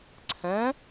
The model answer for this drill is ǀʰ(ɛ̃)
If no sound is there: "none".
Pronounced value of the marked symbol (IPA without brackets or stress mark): ɛ̃